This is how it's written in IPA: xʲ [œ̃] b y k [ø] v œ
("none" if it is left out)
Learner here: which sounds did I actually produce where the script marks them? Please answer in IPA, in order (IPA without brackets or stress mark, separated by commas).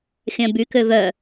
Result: œ̃, ø